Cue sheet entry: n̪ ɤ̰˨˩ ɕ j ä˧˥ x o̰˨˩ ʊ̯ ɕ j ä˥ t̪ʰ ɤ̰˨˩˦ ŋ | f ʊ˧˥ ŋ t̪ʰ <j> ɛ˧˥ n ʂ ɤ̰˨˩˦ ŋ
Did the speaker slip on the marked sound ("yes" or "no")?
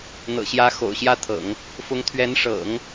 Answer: yes